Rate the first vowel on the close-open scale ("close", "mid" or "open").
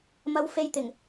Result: open